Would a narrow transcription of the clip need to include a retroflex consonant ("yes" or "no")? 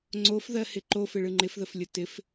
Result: yes